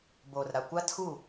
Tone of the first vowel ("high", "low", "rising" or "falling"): low